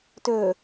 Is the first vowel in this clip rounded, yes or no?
yes